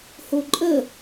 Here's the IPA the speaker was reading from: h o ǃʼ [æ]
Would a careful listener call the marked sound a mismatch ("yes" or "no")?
yes